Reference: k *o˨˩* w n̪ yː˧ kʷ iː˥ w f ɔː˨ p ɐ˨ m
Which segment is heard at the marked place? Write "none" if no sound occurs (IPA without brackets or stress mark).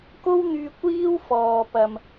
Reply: o˥